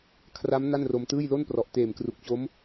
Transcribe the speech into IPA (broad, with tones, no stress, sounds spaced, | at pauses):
kʰ r a˦˥ m n a˥˩ n r o˧ m t ɯː˥˩ j l o˥˩ n p r ɔ˨˩ ʔ t eː˨˩ m k r u˨˩ k̚ t͡ɕ o˦˥ m